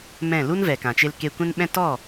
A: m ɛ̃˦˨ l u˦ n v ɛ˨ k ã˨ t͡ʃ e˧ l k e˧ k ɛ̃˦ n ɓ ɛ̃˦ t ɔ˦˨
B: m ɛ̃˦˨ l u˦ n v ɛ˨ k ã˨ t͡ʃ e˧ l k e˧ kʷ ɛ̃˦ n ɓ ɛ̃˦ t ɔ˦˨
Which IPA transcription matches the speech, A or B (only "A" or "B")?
B